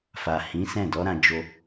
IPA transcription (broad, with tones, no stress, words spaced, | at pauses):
fa˨hĩ˨˦sɛ̃˦˨ dɔ˨˦ ɾã˧ d͡ʒo˦